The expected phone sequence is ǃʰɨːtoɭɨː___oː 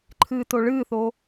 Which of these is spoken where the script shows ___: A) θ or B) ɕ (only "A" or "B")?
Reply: A